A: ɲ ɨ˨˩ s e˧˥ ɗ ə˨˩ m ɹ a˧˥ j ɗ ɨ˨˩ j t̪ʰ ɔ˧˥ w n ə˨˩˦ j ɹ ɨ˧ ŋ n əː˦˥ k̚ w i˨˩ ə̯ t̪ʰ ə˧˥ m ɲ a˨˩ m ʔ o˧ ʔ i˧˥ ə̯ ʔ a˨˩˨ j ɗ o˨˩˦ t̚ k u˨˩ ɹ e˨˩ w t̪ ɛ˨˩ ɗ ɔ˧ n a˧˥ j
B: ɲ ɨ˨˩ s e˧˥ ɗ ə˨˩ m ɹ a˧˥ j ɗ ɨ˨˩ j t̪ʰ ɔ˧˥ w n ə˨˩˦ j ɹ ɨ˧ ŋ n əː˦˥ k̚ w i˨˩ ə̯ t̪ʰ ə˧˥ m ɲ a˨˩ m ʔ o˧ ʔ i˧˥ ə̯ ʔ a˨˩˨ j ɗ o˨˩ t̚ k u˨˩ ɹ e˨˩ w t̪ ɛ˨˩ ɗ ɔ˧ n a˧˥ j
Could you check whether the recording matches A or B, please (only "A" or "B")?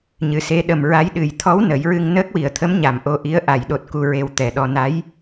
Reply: B